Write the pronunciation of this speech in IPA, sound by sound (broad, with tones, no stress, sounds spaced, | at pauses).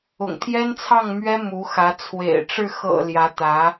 ʊ̰˨˩ ŋ t̪ʰ j ɛ˥ n t͡sʰ ɑ˥˩ ŋ m ɥ ɛ˥ m u˧˥ x ä˧˥ t͡sʰ w ḛ˨˩ ɪ̯ ʈ͡ʂ ɻ̩˥˩ x ɤ̰˨˩ l j ä˧˥ t̪ ä˧˥